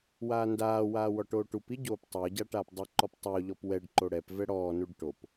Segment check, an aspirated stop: absent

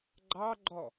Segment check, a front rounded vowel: absent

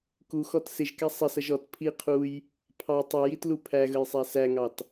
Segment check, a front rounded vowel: absent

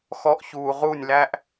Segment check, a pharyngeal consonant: absent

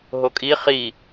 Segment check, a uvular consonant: present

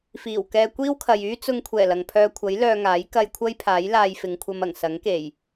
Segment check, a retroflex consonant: absent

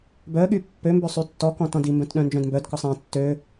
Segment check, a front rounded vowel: present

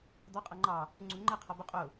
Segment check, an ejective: present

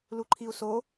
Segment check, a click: present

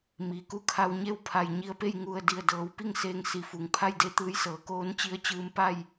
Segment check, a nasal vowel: absent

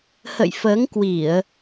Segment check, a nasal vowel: absent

